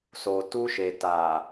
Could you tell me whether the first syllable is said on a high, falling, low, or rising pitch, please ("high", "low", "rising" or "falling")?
low